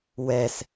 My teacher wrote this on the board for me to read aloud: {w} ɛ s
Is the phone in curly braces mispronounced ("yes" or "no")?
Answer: no